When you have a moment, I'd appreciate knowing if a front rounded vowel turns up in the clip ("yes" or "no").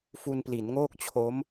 no